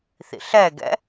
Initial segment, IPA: θ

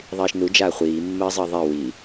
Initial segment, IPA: ðˤ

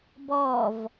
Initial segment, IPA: b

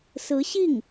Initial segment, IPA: s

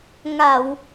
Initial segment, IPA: ŋ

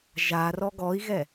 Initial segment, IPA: ʒ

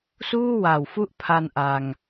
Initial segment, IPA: s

